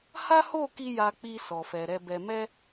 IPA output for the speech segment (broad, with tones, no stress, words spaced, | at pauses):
ha˦ho˦˨ki˧ ja˧k͡pi˧ sɔ˨fɛ˨ɾɛ˧bɛ˧ mɛ˧